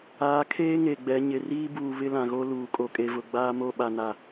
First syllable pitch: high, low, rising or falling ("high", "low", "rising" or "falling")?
rising